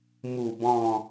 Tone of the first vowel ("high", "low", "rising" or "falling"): falling